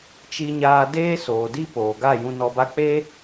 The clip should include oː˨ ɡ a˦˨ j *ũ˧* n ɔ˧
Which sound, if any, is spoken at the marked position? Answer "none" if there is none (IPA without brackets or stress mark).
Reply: ũ˧